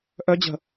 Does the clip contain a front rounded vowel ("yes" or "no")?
yes